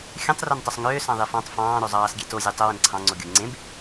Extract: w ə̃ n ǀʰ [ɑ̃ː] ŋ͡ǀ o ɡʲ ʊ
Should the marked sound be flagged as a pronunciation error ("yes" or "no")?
yes